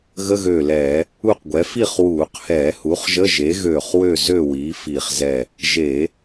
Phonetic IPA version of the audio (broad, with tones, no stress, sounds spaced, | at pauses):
ɣ ə˧˥˧ ɣ øː˧˩ l ɛː˧˩˧ | u˥˨ q ɡʷ ɛ˩˥ f i˥˨ χ w uː˧˩˧ q h ɛː˧˩˧ h u˩˥ χ ʒ ə˧˥˧ ʒ e˩˥ ɣ øː˧˩ χ w ø˥˨ z ø˥˨ w iː˩˥ f iː˧˩ χ z ɛ˥˨ | ʒ e˧˩˧